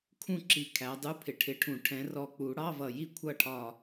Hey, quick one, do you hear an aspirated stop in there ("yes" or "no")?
yes